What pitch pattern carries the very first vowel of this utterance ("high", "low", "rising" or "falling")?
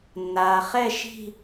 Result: low